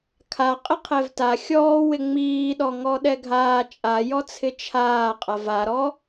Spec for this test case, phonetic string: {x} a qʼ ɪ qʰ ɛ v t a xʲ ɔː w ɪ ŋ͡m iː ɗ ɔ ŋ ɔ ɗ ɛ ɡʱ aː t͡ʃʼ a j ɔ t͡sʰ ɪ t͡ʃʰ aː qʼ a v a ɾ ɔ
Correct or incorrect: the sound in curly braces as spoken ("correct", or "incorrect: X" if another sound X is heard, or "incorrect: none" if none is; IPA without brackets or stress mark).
incorrect: kʰ